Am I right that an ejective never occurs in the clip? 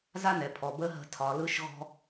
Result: yes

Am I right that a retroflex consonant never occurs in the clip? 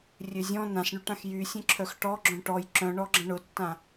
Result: no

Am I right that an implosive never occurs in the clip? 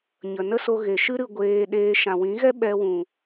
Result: no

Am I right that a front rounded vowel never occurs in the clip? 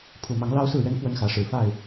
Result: yes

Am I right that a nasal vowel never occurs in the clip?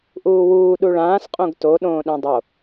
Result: no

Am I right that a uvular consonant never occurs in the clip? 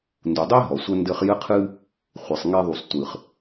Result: no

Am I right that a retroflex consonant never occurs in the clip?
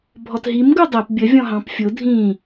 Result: yes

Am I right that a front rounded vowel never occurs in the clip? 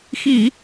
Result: yes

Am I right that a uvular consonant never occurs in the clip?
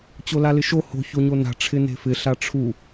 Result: yes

